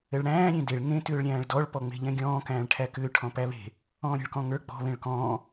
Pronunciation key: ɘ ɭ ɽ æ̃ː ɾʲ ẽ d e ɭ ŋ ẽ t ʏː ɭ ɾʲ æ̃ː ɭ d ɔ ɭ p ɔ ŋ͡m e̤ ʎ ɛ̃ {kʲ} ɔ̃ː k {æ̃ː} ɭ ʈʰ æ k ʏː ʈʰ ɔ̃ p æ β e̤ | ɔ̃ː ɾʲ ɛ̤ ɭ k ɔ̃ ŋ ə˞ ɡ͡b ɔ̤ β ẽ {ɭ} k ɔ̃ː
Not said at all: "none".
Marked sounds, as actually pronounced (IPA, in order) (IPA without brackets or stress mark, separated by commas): ɡʲ, æ̃ː, ɭ